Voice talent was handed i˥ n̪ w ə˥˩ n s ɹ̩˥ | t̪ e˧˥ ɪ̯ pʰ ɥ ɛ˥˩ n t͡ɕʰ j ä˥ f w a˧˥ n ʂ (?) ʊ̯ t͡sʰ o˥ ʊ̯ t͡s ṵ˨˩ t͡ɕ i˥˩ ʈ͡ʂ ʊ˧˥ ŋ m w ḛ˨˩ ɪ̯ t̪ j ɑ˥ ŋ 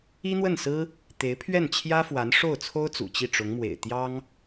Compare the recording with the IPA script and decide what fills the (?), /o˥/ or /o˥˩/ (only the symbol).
o˥˩